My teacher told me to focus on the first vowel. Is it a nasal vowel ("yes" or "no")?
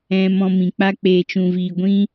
yes